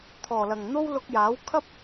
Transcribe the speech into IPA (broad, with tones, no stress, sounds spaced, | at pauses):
t̪ʰ ɔː˨˩ l ɐ˨˩ ŋ n̪ o˥ w l ʊ˧ k̚ j aː˨˥ w kʰ ɐ˥ p̚